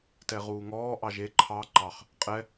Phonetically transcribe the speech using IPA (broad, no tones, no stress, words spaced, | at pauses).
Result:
tɛʁuːŋɔː ʔɑʒe ǃʰɑ ǃɑχ | qʼɛ